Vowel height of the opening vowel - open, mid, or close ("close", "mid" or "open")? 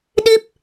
close